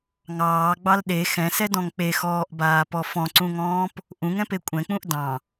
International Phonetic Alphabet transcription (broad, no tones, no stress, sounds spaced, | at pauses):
ŋ ɑː ɡ͡b ɑ l ɗ e x ɛ̃ s ɛ d ɔ̃ ŋ k͡p e x ɔː ʔ b aː p ɔ f ɔ̃ ǀ ũ ŋ ɔ̃ː p | ʔ ũ ŋ ɛ̃ p e kʷʼ ɛ̃ k͡p ũ ʔ d ɑ̃